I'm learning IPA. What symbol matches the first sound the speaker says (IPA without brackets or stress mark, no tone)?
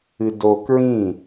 ɨ